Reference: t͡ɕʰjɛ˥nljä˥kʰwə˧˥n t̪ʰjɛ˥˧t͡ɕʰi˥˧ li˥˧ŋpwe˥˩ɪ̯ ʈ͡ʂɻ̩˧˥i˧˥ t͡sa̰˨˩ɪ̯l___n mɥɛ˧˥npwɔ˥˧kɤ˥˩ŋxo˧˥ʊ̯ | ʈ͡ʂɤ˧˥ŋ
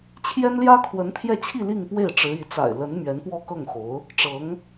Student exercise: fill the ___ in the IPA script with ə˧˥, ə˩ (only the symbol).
ə˧˥